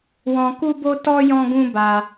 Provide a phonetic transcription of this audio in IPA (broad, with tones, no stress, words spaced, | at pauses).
wɔ̃˧ku˦bo˦ tɔ˦ jɔ̃˦ɡũ˦ba˧